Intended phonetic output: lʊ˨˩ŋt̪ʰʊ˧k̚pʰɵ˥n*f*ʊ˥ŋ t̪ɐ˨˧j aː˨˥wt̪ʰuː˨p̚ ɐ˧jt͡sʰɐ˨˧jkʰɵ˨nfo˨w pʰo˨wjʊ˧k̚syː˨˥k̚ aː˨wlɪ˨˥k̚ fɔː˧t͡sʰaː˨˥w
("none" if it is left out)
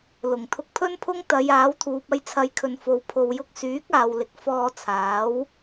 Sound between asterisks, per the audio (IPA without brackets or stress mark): pʰ